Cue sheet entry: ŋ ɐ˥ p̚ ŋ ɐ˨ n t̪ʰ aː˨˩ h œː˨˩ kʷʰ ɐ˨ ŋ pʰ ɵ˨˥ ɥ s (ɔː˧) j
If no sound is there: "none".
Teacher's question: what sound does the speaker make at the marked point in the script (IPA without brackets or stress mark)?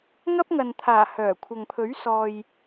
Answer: ɔː˨